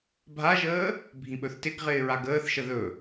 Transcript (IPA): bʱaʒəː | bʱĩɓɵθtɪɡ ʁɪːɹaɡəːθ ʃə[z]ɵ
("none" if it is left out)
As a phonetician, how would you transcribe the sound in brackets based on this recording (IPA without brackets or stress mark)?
ð